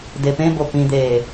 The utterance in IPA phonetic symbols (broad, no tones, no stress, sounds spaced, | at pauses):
d e p ẽ b o p ĩ d̪ eː